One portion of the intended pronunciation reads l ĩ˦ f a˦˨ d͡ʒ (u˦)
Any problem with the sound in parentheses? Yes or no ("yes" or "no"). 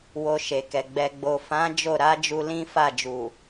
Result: yes